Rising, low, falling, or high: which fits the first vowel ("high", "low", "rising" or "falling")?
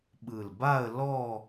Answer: low